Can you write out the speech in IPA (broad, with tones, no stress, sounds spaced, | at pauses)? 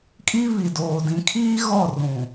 kʼ i˦ β i˨ d oː˨ d ĩ˨ kʰ iː˦ ɣ ɔ˦˨ r ũ˨